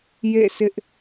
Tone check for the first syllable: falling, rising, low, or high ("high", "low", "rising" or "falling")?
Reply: falling